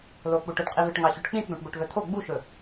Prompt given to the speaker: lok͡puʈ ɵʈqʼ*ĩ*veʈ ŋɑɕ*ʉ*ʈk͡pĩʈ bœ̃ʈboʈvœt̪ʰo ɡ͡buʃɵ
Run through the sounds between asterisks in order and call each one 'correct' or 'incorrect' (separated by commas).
incorrect, correct